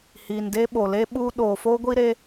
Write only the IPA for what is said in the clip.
h iː˨ n d e˦ ɓ o˨ l e˦ ɓ uː˦ ɗ oː˨ f o˦ ɡʷ i˦ ɾ e˦

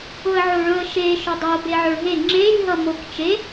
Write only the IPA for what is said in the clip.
ʊ ə̯ ʕ o ɭ ɵ ə̯ ʃ e ʃ ɵ dˤ o b e ʕ ɵ ɭ ɦ e ŋ͡ǁ e lʲ ɦ ʌ m o k t͡ʃ e

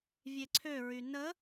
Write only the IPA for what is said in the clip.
vʲ e ǀʰ ø ɹ y n ə

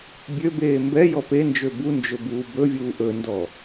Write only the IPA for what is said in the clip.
bʲ ø b eː m b ɛ j ɔ p e n d͡ʒ ø b u n d͡ʒ ɵ b uː b ɵ vʲ uː ʔ ɵ n d ɔ

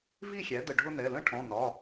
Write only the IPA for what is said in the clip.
v i˥˨ xʲ æ˩˥ d ə˧˩ ɖʱ ʊ˦ n ɛ˩˧˩ l ə̃˦ ʈʰ ɔ̃˩˧˩ n ɒ˩˧˩

